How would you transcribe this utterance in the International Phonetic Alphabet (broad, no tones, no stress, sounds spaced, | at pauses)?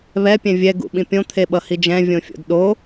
β ɛ pʲ ɛ̃ vʲ ɛ ɡ ṵ ɓ ĩ pʲ õ t̪ʰ e ɓ ʌ h i d͡ʒ ɛ̃ vʲ õ fʲ o̰ d ɗ o